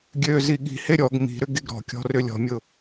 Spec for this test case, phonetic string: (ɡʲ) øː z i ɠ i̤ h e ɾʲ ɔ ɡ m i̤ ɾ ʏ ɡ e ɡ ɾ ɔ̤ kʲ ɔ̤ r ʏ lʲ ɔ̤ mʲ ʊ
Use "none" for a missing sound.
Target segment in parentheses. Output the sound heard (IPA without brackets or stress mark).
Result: ɡʲ